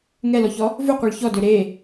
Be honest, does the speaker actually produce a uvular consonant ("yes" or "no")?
yes